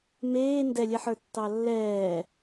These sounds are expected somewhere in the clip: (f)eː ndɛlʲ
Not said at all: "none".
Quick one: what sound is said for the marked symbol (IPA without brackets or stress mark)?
m